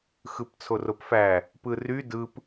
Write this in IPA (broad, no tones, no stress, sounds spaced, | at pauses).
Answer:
x ɯ p t͡sʰ o r o p f æ | p ɯ r y d ɯ p